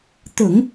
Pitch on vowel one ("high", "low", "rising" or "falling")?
low